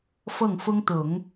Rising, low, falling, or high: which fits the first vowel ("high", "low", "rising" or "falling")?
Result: falling